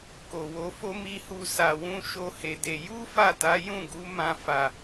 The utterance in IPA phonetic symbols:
k o˨ w o˧ f o˦ m i˧ h u˧ s a˧ w ũ˦ ʃ o˦ h e˧ d e˧ j u˦ f a˦˨ t a˨˦ j ũ˦˨ ɡ u˨˦ m ã˧ f a˨

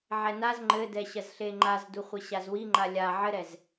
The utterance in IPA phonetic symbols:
ʕ ɛ n a z ŋ͡ǃ ɘ d ɛ ɕ ɐ z ɬ e ŋ͡ǃ a z d u χʷ e ɕ a z w i ŋ͡ǃ a lʲ a ʕ ɘ ɾ ɛ z

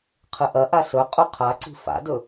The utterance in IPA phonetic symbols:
qʰ ɨ ʔ ɐ ʔ a s ɵ qʼ u qʰ a ǀ i̤ f a̰ d ɵ

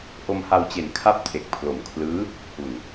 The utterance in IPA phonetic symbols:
ʔ o˧ m h a˧ w t͡ɕ e˨˩ n kʰ a˥˩ p̚ tʰ e˨˩ k̚ pʰ l o˨˩ m kʰ l ɯː˦˥ | h u˨˩ n

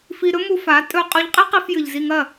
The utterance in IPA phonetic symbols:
f i˧ ɾ ɵ˦ m u˧ f a˨˦ tʼ ɵ˧ qʼ ʉ˧ ʎ qʼ i˦ q i˧ f j ɨ˨ ʎ z i˧ ŋ ɐ˦˨

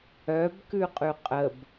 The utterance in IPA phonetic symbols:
œ b k ʉ qʼ ʉ qʼ ə b

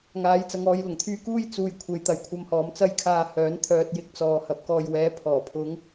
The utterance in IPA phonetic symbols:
ŋ aː˨˥ j t͡s ɐ˨˧ ŋ ɔː˨˧ j l ʊ˨˩ ŋ t̪ʰ yː˧ k uː˥ j t͡s uː˨ j kʷʰ e˨ j t̪ ɐ˨ j kʷʰ ɐ˧ m h ɔː˨˧ m t͡s ɐ˧ j kʰ aː˨ h œː˨˥ n t̪ʰ œː˧ t̚ j ɪ˧ k̚ t͡s ɔː˨ h ɐ˨ p̚ k ɔː˨ j w ɛː˨˥ pʰ ɔː˨˩ pʰ ʊ˨˧ ŋ

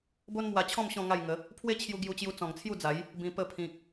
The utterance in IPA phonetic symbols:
b o˦ n m w a˧ t͡ɕʰ ɔ̃˥˧ m ɕ ɔ̃˥˧ ŋ a˥˧ j ŋ ə˨˦ | pʰ w e˦ t͡ɕʰ j u˧ ɡ j u˧ t͡ɕ j u˧ t͡s ɔ̃˨˩ ŋ t͡sʰ j u˥˧ d͡z a˨˦ j | b ĩ˧ p ə˧ pʰ ĩ˨ k̚

